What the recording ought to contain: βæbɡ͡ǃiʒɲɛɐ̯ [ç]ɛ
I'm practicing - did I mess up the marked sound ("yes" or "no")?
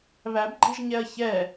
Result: no